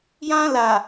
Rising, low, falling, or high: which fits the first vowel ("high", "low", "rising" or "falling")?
high